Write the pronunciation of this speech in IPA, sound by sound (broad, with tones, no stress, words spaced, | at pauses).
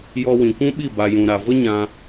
jɔ˧wĩ˨kʷũ˦ɓi˦˨ ba˨jũ˨ɾa˨ və˦ɲã˧